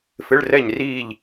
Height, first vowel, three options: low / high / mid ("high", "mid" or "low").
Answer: high